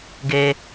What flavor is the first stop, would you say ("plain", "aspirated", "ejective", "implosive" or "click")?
plain